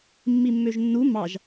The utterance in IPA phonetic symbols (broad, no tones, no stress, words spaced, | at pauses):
mːimːøʒnːu mɑʒ